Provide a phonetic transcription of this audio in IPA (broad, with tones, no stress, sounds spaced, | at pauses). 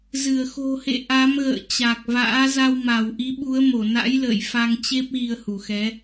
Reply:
z ɨ˧˩ ə̯ x o̤˨˩ h ḛ˧˨ ʔ a˨˦ m ɣ ə̰ː˧˨ t͡ɕ a˨˩ k̚ v a̰ː˧˥ z a˧ w m a˧˩ w ʔ i˨˦ ɓ u˨˦ ə̯ m o˧˩ n a̰˧˥ j l ə̰ː˧˨ j f a˧ ŋ t͡ɕ e˦˥ p̚ ɣ i˧ ə̯ h u˧˩ x ɛ˨˦